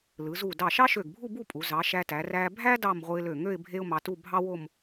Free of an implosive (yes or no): yes